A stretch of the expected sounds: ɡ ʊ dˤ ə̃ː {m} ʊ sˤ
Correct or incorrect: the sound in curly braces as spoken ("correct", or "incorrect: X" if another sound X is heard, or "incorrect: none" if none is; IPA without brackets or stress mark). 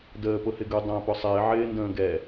incorrect: p